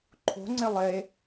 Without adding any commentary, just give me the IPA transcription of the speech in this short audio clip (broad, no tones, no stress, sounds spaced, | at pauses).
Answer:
ǃʰ o̤ ŋ͡ǀ e lˠ e